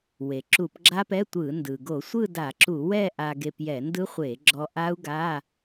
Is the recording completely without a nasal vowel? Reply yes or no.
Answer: yes